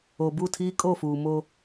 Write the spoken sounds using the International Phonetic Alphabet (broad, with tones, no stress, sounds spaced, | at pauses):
o˨ b u˦˨ tʰ iː˦ kʼ o˦˨ f uː˨ m o˦